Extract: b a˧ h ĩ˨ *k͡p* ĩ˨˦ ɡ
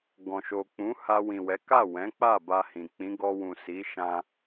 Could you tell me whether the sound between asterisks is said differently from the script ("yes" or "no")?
no